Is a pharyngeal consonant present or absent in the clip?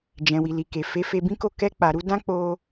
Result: absent